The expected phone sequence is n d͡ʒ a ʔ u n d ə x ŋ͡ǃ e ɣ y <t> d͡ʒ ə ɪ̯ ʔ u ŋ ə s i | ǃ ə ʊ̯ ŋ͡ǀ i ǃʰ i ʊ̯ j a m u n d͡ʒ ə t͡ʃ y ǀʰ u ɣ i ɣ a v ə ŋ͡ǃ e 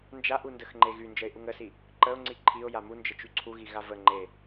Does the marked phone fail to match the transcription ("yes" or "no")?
yes